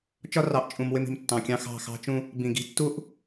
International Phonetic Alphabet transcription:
t͡ʃɒ˦rɑ˨ʔt͡ʃʼũ˨m wɪ˦mi̤˨mtːɑ̃˨kʲɑ̃˦ xɑ̤˦˨xɑ̤˦t͡ʃũ˦ | bĩ˨ɡi̤˦tːu˦ʔ

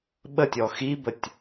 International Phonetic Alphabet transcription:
ɓətʲɔ xibətʲ

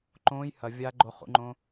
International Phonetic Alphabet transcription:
ǃõːj hɐ vʲa ɡ͡ǃo χṵŋ͡ǃõː

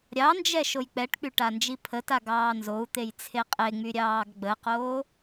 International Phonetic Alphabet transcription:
ɾʲɑnd͡ʒɛ ʃojk͡pɛʈk͡py ʈand͡ʒipʰəta ɡɑːnzou̯t̪ej t͡sʰeqʼeŋ͡my ɾʲɑːɡɡ͡bəqoː

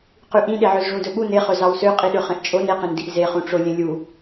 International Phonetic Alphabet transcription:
qʉʔĩɗeʕøz ʐũdɵɓu neχɵ zɑwsøqʼiɗø χẽʔt͡ʃʼon eqẽndiʔ zeχũʈ͡ʂo lʲẽlʲu

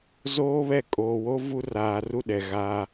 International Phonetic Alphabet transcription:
zoː˦βɛ˦˨ kʼoː˨wo˦ vu˦raː˨ ru˦ ɗɛ˨ɣaː˦

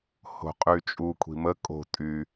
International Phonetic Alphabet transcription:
ho̤qʼyt͡ʃʼu kʷʰi̤mə kʼo̤ tʼy

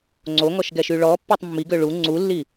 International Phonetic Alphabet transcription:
ŋ͡ǀoŋɔʃɡɛʃy ɭɔpːotˤ mːiɡø ɭu ŋ͡ǀulːi

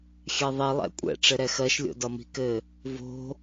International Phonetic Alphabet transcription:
xʲɛðˤi lˠɛ̰kʷʼɛ̰ ʈ͡ʂɘɾɛxɜʃ lʲo̰dɒmi̤kɘ | vo̤

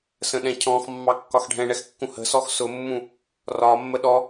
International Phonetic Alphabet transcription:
sə̃ɗɛ̃cʰɔ̃xmːɑ kːɒxɖʱɛ̃ɳɛx kːũhə̤sɔx sʊmːũ | rɒmːə ɗɔ

